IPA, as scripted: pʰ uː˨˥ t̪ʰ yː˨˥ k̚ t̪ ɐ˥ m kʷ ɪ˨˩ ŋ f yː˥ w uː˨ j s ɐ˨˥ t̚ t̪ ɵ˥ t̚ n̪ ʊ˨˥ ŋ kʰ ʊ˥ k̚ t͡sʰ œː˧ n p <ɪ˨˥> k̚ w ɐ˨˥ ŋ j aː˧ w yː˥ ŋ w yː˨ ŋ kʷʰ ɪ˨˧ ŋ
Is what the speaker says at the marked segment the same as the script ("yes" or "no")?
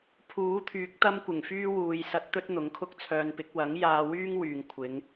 yes